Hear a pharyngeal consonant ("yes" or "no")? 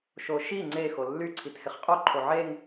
yes